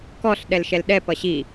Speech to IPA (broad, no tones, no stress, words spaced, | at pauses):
kɔɬ ɗɛlʃɛlɗɛ pʌɕi